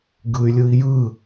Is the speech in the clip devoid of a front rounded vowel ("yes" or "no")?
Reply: no